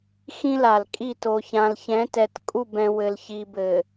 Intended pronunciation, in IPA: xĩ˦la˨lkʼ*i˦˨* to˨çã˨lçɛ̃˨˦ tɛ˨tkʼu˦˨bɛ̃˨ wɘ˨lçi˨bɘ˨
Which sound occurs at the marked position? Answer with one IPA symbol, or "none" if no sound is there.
i˦˨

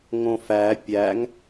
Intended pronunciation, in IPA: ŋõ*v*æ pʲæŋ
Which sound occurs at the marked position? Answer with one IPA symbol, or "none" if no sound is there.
f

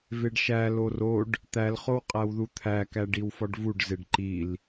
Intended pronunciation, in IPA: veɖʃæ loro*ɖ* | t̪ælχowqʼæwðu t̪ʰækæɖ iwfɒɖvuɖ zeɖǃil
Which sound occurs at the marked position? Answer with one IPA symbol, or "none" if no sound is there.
ɖ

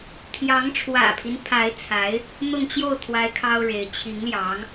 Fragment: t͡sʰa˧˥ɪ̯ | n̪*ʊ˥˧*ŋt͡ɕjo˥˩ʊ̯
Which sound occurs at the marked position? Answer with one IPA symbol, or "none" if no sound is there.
ʊ˥˧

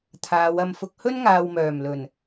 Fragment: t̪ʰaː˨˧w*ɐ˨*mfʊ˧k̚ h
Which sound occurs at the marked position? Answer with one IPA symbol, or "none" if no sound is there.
ɐ˧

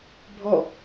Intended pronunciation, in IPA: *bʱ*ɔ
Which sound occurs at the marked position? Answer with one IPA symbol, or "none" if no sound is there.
bʱ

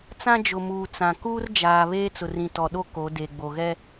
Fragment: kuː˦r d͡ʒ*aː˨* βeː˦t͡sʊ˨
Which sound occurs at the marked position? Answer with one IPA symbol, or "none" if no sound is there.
aː˨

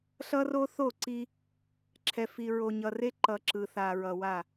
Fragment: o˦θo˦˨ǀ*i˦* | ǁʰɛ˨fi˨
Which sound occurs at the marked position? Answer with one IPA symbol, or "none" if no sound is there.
i˦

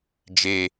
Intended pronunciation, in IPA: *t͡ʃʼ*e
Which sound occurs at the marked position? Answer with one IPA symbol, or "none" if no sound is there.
d͡ʒ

